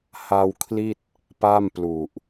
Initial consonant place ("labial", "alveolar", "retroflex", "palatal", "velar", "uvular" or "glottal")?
glottal